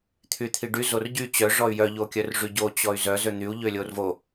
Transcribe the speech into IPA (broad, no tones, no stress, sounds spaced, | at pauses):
t̪ʰ y t̪ʰ i ɖ y z o r ɟ y t͡ɕ œ ʐ ɔ y̯ j œ ʎ o kʲ œ r ʐ y ɟ o t͡ɕ ɔ y̯ z œ z ø n̪ y u̯ ʎ ø lʲ o r v o